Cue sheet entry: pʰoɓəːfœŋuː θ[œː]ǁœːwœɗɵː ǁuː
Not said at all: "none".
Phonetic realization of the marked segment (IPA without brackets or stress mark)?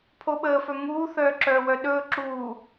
œː